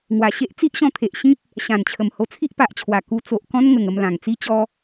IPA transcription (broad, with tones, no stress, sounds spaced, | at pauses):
ŋ w a˨˩ ɕ e˦ ʔ t͡s i˦ ʔ ɕ ɔ̃˧ t̪ʰ e˨ ʔ ɕ ĩ˦ p̚ | ɕ ã˨˩ n t͡ɕʰ ə˨˩ m h o˧ t͡sʰ i˦ ʔ p a˨ ʔ t͡ɕʰ w a˨˩ k u˧ t͡s o˨ ʔ k ɔ̃˦ n ŋ ə˨˩ ŋ ə˧ m l ã˨˩ ŋ t͡s i˦ t͡ɕ ɔ˦